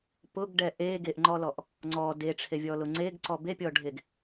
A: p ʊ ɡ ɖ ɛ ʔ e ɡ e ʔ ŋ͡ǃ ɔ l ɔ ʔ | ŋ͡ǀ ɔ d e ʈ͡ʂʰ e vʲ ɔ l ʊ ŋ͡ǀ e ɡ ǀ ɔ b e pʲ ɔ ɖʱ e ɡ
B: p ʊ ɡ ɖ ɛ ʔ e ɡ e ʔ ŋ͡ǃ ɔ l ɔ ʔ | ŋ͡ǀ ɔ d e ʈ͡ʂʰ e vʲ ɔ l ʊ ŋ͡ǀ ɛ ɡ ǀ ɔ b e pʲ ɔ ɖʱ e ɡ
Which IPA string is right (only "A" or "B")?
A